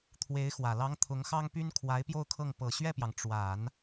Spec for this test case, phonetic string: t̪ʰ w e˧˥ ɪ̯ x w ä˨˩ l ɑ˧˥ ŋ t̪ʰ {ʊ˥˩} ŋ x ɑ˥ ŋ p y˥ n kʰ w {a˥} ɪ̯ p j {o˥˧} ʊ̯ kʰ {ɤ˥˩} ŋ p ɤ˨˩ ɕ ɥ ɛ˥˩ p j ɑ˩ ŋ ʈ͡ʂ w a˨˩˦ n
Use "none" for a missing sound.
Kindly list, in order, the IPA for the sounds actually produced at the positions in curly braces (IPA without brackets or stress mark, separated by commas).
ʊ˧˥, a˧˥, o˥˧, ɤ˥˩